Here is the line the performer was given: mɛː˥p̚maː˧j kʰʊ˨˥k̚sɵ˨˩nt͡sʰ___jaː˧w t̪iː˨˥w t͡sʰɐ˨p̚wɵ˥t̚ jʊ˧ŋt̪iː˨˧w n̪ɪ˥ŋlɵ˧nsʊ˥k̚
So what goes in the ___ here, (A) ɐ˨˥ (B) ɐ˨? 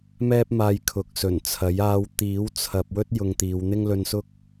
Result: A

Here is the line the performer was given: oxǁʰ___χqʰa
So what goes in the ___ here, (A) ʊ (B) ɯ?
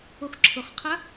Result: A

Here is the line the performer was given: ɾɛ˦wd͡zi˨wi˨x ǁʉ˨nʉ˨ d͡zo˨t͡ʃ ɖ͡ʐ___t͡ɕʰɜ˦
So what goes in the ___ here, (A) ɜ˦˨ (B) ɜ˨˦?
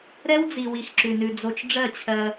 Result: A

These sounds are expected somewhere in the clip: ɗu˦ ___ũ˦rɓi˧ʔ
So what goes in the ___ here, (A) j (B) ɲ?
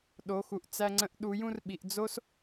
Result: A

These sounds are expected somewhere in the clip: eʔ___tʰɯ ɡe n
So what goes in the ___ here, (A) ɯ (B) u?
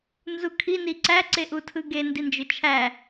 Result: B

